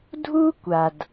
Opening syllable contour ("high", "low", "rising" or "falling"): high